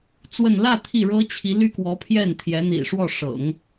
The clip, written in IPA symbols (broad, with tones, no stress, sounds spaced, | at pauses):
t͡s w ə˥˧ n l ä˥˧ t̪ʰ i˥˩ ɻ ɤ˥ t͡ɕʰ i˧˥ l y˥ k w ɔ˧˥ pʰ j ɛ˥˩ n t̪ʰ j ɛ˧˥ n̪ ḭ˨˩ ʂ w ɔ˥˩ ʂ ɤ̰˨˩˦ ŋ